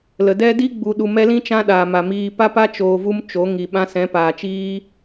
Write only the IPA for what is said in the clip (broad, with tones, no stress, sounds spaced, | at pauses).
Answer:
l ə˨ d ɛ˦ d i˧ ɡ͡b u˨ ɗ u˨ m ɛ˧ l ĩ˦ t͡ʃ ã˦ ɗ aː˨ m a˨ m iː˨ p a˦ p a˦ t͡ʃ oː˨ v u˧ m t͡ʃ o˨˦ ŋ i˨ ɓ ã˧ s ɛ̃˨˦ p aː˨ t͡ʃ iː˦